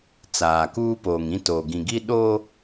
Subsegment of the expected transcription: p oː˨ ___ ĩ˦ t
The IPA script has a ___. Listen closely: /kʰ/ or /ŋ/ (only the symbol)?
ŋ